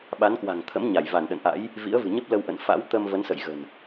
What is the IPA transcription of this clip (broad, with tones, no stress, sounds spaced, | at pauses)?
ɓ a˨˦ n k w a̤˨˩ ŋ t̪ʰ ə̰˧˥ m ɲ a˧˩ j v a˧˩ n ɗ ə̰˧˨ n ʔ a̰˧˥ j | v ḭ˧˥ ə̯ v ɨ̤˨˩ ɲ ə˦˥ p̚ l ə˧ w ʔ ə̰˧˨ n f a̰˧˥ w t̪ ə˧ m v ə˨˦ n s ə̰˧˨ j ɣ ə̤˨˩ n